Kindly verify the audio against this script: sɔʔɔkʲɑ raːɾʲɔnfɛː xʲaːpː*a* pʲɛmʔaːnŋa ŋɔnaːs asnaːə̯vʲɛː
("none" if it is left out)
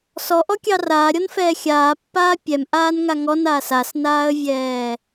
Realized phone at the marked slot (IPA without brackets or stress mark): aː